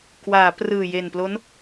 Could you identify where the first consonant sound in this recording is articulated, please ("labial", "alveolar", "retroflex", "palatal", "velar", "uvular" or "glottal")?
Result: velar